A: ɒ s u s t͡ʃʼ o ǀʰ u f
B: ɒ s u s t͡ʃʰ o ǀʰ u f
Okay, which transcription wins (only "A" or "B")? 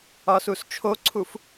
B